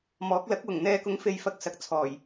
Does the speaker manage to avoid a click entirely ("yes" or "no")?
yes